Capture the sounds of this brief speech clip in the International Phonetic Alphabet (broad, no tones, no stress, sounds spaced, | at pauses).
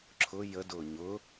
ǁʰ ʊ j ə d ʊː ɲ ʊ